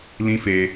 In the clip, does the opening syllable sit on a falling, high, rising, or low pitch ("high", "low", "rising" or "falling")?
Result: high